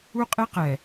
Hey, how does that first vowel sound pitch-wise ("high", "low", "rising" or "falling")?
high